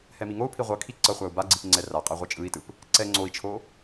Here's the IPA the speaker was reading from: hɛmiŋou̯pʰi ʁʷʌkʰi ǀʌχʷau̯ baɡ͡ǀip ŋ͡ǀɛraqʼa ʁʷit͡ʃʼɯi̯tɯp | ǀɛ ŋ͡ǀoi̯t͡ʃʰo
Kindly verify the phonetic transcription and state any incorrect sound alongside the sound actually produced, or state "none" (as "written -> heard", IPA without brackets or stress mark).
none